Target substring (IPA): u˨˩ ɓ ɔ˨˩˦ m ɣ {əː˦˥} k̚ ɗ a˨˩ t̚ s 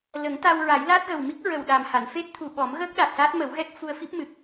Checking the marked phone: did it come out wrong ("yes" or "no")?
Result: no